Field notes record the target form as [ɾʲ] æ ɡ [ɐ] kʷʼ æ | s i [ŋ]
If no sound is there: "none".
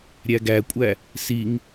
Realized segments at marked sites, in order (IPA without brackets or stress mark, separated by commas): ɾʲ, æ, ŋ